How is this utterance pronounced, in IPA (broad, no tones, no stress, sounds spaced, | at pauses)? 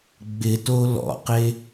ɡ͡b ɪ t o l ɔ̰ q e